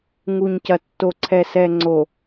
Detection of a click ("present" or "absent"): present